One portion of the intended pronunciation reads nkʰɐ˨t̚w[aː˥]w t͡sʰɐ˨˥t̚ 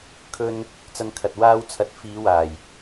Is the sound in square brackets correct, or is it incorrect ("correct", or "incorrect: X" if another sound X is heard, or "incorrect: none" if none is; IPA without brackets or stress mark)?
correct